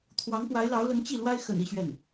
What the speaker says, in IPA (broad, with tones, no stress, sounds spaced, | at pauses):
t̪ʰ w ɑ˧˥ ŋ p w a˧˥ ɪ̯ l ɑ˧˥ ʊ̯ l ə˧˥ n t͡ɕ i˥˩ l w a˥ ɪ̯ x ə̰˨˩ n i˥˧ ɕ ɥ ɛ˥˩ n